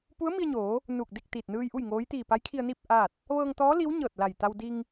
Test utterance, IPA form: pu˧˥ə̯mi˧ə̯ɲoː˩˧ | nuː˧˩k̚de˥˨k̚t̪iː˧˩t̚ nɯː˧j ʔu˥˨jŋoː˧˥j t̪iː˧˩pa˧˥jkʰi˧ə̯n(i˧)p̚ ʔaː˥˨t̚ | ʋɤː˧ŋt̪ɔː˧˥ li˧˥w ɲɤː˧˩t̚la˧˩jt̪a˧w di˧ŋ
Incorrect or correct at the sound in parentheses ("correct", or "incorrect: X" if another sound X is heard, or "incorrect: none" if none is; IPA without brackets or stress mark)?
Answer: incorrect: i˥˨